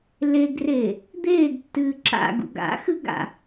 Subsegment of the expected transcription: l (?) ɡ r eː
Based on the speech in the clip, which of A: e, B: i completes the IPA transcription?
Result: A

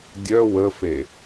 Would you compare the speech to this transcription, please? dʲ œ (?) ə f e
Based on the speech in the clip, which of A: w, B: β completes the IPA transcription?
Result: A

